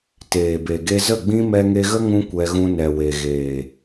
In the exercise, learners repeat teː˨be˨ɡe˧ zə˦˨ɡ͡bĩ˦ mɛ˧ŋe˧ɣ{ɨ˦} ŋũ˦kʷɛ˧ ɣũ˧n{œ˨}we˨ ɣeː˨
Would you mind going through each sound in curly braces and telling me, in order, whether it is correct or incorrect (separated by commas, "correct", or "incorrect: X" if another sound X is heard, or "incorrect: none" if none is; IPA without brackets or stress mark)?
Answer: incorrect: ə˦, incorrect: ɛ˨